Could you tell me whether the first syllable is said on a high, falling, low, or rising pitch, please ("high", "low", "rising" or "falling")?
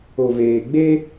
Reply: low